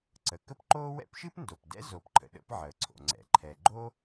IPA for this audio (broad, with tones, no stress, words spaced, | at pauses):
ǀə˩kə˥pǃoː˥ wɛ̰˥pʃɨ˥pndo˩p dɛ̰˥zoː˩pǃʰə̰˩ ɗə̰˥pʕəː˩ǀʰo̰˩ ŋ͡ǀɛ̰˩ǃʰɛ˩ ɡ͡ǃo˥